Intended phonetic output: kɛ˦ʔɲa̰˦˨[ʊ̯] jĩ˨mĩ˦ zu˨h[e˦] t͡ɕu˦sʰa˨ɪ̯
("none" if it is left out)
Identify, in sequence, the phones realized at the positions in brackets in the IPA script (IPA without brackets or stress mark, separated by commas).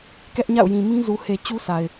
ʊ̯, e˨